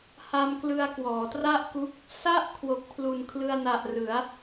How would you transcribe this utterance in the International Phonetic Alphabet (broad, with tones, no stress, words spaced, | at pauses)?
ha˧mklɯ˧a̯ kwɔː˩˦tra˥˩ʔku˦˥k̚ | sa˥˩ʔ kʰwo˨˩k̚pʰlu˨˩nkʰlɯ˧a̯na˨˩ʔ rɯ˩˦a̯